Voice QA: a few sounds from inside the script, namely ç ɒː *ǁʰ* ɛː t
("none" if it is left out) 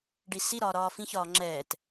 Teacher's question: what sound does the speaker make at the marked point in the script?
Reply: ŋ͡ǁ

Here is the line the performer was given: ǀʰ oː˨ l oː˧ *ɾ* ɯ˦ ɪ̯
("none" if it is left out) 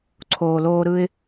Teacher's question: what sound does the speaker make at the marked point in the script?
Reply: ɾ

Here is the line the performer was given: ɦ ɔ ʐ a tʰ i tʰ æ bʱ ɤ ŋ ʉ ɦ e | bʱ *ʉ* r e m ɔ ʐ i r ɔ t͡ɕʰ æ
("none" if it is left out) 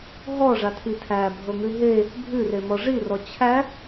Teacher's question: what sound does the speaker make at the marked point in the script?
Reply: ʉ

